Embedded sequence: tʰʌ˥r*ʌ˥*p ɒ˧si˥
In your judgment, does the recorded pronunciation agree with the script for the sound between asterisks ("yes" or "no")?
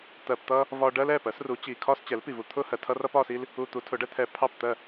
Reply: yes